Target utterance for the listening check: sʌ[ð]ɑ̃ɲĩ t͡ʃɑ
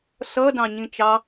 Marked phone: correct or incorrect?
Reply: incorrect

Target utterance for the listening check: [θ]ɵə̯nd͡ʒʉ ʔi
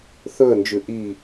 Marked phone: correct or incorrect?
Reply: correct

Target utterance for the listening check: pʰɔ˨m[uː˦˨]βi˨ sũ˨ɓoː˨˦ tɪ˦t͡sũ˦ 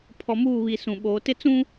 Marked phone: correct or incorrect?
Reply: correct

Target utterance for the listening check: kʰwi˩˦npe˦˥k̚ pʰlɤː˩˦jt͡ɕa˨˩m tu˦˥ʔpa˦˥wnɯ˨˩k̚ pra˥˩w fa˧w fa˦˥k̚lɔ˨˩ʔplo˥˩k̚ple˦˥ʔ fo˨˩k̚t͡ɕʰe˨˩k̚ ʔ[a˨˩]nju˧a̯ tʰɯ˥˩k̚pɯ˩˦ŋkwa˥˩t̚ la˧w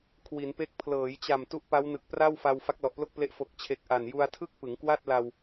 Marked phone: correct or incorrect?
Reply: correct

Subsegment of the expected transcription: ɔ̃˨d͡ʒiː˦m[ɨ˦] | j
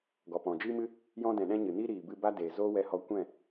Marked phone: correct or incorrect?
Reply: correct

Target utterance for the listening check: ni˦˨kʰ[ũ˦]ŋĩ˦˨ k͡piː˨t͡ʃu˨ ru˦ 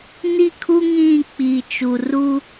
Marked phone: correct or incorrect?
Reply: incorrect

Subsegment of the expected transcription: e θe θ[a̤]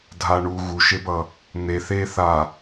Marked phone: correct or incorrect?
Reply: incorrect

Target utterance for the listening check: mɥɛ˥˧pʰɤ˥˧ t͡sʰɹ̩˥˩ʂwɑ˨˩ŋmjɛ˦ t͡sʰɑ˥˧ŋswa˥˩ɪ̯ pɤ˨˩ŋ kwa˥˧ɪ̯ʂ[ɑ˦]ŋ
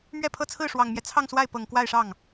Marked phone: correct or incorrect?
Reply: incorrect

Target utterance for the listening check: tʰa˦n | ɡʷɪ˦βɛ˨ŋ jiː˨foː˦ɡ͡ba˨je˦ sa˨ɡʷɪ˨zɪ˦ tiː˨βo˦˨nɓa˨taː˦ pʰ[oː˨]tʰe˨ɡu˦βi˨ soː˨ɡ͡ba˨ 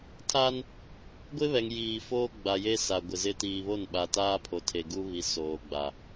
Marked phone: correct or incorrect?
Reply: incorrect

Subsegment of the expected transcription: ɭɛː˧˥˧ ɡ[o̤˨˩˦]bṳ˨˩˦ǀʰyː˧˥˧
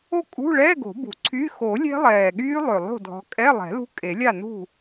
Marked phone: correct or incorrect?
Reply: correct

